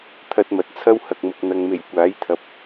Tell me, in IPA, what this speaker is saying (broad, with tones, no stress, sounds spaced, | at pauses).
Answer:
t̪ʰ ɐ˧ t̚ m ɐ˨ t̚ t͡sʰ ɐ˥ w h ɐ˨ k̚ m ʊ˨ k̚ n̪ ɐ˨ ŋ m e˨˩ j kʷ aː˨˥ j t̪ʰ ɐ˨ p̚